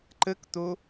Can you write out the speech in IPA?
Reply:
ǃək t̪o

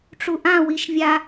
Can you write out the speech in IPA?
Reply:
ʈ͡ʂuʔã wiʃvʲa

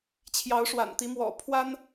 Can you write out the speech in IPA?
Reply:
t͡ɕʰjɑ˨˦ʊ̯ʂwa̰˨˩nt̪i˨˦mwɔ̰˨˩ pʰwa˦n

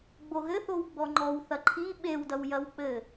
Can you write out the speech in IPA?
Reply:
ɡ͡boɣɘθow ɡ͡bɔŋ͡ǃɔwθɐ ǃʰi ɓewdɐw jɐwk͡pɘ

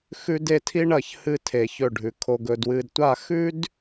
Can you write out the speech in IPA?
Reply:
xʉ˥de˥tʰi˥ ɳɐ˥˧çhɨ˥tʰe˧ çɵ˥˧ɖʱʉ˧ kʰo˧ɡɵ˧ dwɨː˧dtʷa˥˧ xʉ˥d

